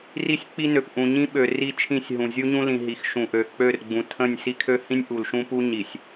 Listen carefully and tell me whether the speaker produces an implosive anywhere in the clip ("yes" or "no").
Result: yes